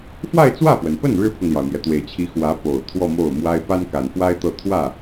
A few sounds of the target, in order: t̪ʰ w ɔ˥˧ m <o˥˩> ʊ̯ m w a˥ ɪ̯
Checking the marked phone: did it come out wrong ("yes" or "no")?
no